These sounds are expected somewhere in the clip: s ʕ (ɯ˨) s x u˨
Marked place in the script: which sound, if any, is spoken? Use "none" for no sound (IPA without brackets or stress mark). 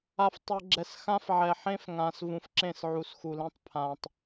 u˨